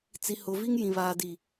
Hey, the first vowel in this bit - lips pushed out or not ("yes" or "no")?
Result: no